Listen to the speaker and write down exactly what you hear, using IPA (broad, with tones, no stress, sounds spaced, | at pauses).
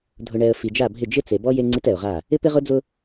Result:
dʱ ʊ˨ ɳ ɛ˨ ə̯ f i˨ d͡ʒ a˦˨ bʱ ɪ˦˨ d͡ʒ ɪ˦ t͡s e˨ b ɔ˦ j e˦ ŋ͡ǀ i˦ t ɛ˨ ʊ̯ ʁ a˦˨ | ɪ˦ p ɪ˦ ʁ ʊ˦ d͡z ʊ˦